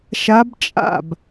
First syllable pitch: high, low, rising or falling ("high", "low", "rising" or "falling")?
rising